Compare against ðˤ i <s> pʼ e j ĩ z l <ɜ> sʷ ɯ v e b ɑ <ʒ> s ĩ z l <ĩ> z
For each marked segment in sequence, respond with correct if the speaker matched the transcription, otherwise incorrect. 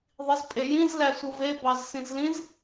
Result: incorrect, incorrect, incorrect, correct

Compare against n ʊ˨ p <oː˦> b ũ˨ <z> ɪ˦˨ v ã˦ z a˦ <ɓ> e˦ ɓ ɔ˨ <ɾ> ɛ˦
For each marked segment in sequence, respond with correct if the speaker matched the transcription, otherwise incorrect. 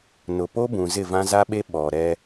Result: incorrect, correct, correct, correct

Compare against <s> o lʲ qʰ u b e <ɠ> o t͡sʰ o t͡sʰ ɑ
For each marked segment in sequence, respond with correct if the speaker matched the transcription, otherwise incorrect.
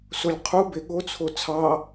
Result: correct, correct

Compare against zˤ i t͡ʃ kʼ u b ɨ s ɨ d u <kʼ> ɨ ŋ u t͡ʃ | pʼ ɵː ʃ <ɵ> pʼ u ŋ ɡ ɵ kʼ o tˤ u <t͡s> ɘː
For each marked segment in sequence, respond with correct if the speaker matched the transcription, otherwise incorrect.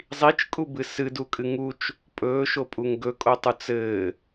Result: correct, incorrect, correct

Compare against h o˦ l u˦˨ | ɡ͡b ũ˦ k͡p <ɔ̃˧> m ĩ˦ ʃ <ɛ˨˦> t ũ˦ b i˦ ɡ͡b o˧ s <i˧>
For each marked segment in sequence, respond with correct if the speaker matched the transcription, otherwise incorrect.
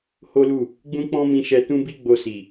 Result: incorrect, incorrect, incorrect

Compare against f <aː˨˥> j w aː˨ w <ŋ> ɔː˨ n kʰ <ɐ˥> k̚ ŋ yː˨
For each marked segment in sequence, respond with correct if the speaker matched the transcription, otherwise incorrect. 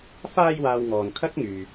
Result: incorrect, correct, correct

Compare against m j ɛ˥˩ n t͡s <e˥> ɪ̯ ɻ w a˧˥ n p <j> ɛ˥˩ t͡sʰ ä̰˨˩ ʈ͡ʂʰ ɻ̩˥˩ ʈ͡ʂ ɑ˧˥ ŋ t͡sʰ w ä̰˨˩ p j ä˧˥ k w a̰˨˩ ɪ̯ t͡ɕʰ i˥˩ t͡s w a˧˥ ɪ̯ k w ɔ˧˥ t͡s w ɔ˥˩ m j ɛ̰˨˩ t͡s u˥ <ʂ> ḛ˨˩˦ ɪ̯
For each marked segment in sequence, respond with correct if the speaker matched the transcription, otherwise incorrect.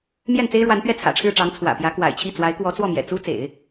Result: correct, incorrect, incorrect

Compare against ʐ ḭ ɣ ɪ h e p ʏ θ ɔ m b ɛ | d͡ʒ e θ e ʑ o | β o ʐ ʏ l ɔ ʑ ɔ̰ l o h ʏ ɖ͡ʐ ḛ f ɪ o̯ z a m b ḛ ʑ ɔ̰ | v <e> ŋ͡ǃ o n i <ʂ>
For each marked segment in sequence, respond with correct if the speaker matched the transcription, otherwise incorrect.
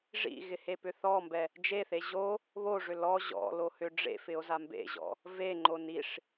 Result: correct, correct

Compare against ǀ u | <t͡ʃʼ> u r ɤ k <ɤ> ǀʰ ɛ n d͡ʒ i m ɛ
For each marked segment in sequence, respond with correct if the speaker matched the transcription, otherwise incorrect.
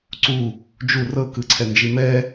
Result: incorrect, incorrect

